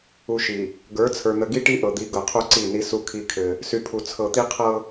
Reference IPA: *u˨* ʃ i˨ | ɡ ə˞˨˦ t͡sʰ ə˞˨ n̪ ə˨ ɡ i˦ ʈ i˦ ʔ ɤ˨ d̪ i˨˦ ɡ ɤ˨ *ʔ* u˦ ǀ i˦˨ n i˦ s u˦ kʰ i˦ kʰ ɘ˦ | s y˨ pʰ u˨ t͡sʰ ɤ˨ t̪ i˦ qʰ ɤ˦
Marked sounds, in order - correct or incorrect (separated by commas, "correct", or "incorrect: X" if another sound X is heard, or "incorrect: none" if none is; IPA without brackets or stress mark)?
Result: correct, incorrect: qʰ